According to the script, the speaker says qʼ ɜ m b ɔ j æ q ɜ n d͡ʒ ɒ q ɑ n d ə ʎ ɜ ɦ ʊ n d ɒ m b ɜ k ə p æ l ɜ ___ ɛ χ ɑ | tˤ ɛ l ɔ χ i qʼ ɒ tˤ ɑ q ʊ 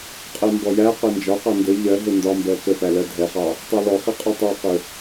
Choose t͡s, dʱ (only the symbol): dʱ